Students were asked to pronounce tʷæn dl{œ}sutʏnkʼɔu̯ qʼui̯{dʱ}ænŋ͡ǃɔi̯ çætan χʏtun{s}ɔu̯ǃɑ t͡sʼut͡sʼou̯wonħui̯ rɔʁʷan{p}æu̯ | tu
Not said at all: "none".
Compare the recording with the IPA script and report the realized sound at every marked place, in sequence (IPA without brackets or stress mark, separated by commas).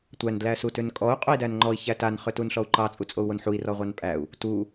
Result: æ, d, ɬ, pʼ